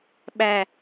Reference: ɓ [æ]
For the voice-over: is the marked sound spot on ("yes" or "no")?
yes